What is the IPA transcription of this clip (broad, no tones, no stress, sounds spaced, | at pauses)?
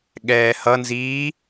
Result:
ɠ ɛː h ʌ n z iː